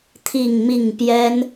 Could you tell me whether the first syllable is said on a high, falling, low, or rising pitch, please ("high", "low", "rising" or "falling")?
falling